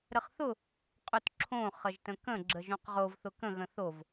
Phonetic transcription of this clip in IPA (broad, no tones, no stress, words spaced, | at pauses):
ɾəχθʊ | qʼʊtǁʰõ χəʒtə̃kə̃ ɡ͡ǁəʒõqʁov θʊkə̃ ɣə̃θov